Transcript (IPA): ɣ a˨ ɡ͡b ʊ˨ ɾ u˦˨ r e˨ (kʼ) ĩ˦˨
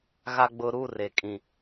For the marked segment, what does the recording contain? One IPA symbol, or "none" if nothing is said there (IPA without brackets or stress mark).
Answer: kʼ